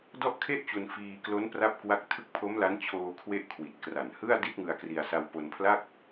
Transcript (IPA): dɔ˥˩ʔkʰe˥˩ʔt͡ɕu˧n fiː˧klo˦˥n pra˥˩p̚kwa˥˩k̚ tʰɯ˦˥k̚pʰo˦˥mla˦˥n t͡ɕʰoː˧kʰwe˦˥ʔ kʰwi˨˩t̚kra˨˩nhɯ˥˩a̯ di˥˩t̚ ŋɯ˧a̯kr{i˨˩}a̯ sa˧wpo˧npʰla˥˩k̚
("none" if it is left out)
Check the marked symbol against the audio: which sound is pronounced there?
i˧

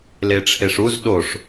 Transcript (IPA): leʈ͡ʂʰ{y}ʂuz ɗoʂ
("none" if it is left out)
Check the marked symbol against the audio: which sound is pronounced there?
e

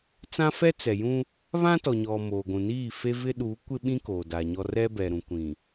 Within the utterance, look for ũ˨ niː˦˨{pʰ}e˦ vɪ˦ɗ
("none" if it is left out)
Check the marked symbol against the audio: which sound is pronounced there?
f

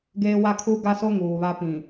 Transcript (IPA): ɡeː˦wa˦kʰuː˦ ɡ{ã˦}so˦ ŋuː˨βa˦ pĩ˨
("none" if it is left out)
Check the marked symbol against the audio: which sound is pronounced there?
a˦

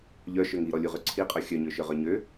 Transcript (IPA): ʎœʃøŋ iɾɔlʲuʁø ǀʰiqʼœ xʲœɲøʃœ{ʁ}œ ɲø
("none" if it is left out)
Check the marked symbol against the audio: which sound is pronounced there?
ʁ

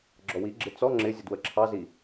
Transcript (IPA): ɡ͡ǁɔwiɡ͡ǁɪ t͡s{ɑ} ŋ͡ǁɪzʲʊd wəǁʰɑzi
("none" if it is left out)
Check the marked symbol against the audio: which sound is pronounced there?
ɔ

